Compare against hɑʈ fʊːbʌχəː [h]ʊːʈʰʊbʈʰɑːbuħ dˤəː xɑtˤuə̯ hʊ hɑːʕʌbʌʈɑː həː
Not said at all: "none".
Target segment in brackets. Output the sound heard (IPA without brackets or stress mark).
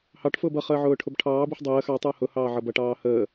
ʕ